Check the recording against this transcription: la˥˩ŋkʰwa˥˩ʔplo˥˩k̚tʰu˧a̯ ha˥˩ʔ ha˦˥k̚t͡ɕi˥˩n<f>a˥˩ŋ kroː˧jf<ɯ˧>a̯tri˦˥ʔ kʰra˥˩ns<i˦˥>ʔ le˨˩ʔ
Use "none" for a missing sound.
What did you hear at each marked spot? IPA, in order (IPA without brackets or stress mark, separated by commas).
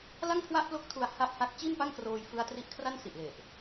p, ɯ˧, i˨˩